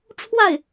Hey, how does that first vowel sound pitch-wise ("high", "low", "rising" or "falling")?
falling